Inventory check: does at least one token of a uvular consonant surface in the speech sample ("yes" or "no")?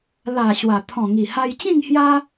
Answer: no